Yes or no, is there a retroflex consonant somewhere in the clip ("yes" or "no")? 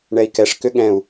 yes